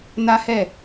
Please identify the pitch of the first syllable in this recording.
high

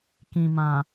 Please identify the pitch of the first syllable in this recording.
low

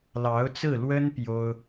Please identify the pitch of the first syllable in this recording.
rising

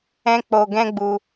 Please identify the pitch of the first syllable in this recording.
high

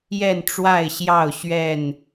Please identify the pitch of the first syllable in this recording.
falling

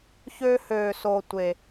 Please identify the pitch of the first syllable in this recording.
high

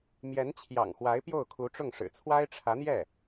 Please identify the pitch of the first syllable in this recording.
rising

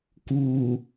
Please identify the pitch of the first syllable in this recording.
low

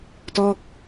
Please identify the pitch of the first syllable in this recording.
falling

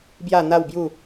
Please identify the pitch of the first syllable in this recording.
falling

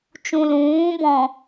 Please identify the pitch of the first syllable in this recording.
low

